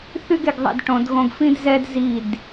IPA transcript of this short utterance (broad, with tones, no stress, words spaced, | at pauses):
θy˥ɡe˦˨ɡðˤɛ̰˦˨d ʈõ˧˥dɣõ˥ɡ fĩ˥dzɛ˥d zi˦˨d